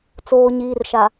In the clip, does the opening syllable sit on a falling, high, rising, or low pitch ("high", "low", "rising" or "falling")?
low